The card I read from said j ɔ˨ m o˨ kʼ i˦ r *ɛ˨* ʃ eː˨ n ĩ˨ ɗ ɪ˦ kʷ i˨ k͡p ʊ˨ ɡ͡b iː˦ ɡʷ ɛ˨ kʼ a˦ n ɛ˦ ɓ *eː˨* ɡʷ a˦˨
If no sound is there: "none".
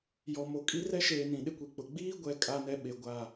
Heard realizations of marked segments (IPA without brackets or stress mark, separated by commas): ɛ˦, e˨